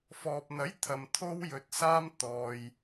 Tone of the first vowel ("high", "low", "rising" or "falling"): low